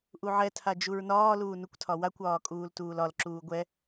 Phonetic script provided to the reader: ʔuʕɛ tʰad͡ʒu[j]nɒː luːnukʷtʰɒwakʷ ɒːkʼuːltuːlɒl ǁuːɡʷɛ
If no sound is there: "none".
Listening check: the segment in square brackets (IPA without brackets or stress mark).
ɹ